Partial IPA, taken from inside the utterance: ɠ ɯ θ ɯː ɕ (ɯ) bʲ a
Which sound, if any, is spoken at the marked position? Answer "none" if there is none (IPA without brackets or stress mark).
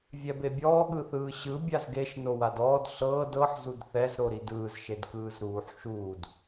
ɯ